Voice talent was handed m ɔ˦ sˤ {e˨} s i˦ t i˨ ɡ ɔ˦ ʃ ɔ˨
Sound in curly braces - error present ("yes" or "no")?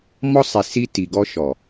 yes